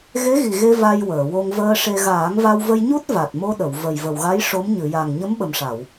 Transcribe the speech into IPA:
ɣe˧˥ɣi˨˩ɣe˧ va˧j wəː˨˩˨wo˧ŋvəː˧ʂe˧ ɣaː˨˩˦ŋva˧wvə˧jɲu˦˥t̚ va˨˩t̚mo˧ɗə˨˩˨w və˨˩jvə˨˩wɣa˧˥j ʂo˧˥m ɲɨ˨˩˨ja˨˩ŋ ɲə˧˥mɓə˨˩mʂa˨˩˨w

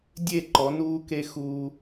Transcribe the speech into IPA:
dʲe˦˨ǃɔ˨˦ nuː˦ke˦xuː˦

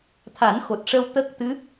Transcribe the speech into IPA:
t̪ʰa˨˩˦nxo˨˩t̚ʂə˧w t̪ə˦˥k̚t̪ɨ˧˥

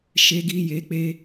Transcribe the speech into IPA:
ʃe˧ɡi˧je˨˦k͡pe˧

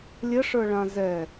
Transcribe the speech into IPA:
lʲəʂə˞ɭã zɛ

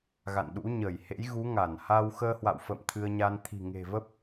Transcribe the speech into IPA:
ɣa̰˧˨nɗṵ˧˥ ɲə˧˩jhḛ˧˥jɣu˨˦ ŋa˧˩nha˧w xəː˧ hwa̰˧˨wfə̰ː˧˨m t̪ʰɨ˧ə̯ɲa˧n t̪ʰi̤˨˩ ŋe̤˨˩və˦˥p̚

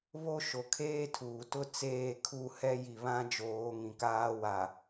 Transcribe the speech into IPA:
βo˦ʃo˨ kʰeː˦tʰuː˨ tʊ˦ t͡seː˦˨kʰu˦˨hɛ˦ji˨ βã˦ d͡ʒoː˨˦ŋĩ˨ kaː˦wa˨

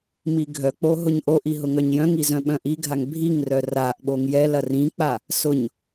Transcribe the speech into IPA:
miɡʱœk͡po ɦʊɲʔoʔi ɦʊŋœɲjœ̃ŋi zœ̃ɓœ̃ʔiɡʱaŋ bʱiŋ rœraʔɓoŋ jɛlɐ rĩk͡pa | sʊɲ

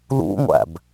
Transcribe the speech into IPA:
lṵŋʷæ̰b

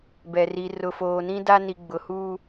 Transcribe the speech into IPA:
bɛ˨ri˨ rʊ˨foː˨nĩ˦ da˦ ni˨ɡ͡bʊ˨huː˦

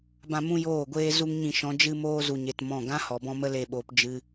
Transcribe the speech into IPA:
bã˦ mũ˦joː˦˨ɡʷeː˦ zu˦ŋɲĩ˧ʃɔ̃˨˦ d͡ʒɨ˦moː˦ zu˧ɲe˧tmɔ̃˦˨ ɡã˦ hɔ˨bɔ̃˧mə˧ le˦˨ɓoː˧p d͡ʒɨ˧

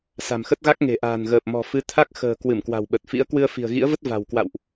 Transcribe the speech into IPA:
sa̤˨˩mxə˦˥t̚ɣa˦˥k̚ ŋe̤˨˩ʔa̤ː˨˩nɣəː˨˩p̚ mɔ̤˨˩fɨ˨˦ t̪ʰa˦˥k̚xə̤ː˨˩ kwɨ˧˩mkwa̤˨˩wɓə˨˩t̚fḭ˧˥ə̯ kwɨ˧ə̯fi̤˨˩ə̯ɣḭ˧˥ə̯və˦˥t̚ va̤˨˩wkwa̰˧˨wʔ

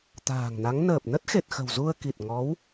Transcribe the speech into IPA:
t̪a̤ː˨˩ŋna˨˦ŋ nəː˨˩p̚nə˦˥t̚xe˨˩t̚xə̤˨˩w zu˧ə̯ki˨˩t̚ ŋɔ˨˦w

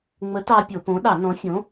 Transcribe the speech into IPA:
ŋ͡mə˨˥tɑ˧ pʲo˧˩˧põ˨˥ ɗɑ˧˩˧nɔ̃˨˥fʲõ˨˥

